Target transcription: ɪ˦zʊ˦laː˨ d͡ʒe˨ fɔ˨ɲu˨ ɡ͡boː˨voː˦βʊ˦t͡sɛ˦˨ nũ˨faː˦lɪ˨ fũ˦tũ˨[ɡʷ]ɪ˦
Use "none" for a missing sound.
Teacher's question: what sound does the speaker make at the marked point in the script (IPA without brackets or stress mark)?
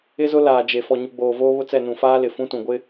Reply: ɡʷ